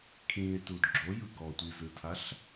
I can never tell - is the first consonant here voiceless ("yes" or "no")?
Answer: yes